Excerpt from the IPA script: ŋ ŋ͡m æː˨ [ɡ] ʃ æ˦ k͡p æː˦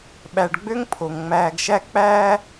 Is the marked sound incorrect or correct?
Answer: correct